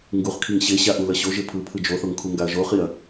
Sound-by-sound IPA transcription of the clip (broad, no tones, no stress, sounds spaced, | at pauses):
ŋ ɡ u χ kʰ i ŋ ɕ e ɕ a ʔ u l ʌ ɕ o ʒ e pʰ ɯ pʰ ɯ d͡ʒ o θ o ŋ kʰ u ŋ ɡ a ɐ̯ ʒ o χ i ɐ̯